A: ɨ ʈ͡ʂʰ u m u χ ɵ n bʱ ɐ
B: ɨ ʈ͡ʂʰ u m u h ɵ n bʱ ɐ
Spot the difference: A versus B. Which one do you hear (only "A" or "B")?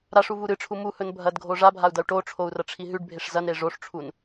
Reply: B